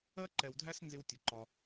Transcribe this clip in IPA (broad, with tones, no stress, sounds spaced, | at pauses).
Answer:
ɜ˦ ǃ ɛ˨ w dʱ æ˦ s n z ɪ˦ w tʲ ʊ˨ ǃ ɒ˦